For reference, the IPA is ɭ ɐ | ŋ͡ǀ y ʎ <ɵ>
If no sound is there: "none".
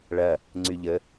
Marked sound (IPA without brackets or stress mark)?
ə